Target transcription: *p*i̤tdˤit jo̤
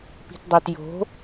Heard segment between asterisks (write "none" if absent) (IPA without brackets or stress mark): p